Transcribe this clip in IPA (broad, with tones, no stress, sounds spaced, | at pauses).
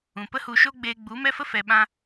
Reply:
ũ˨ p ə˦ h u˧ ʃ o˦ ɡ͡b eː˧ ɡ͡b u˨˦ m ɛ˦ f ə˦ f ɛ˨ ɓ ã˧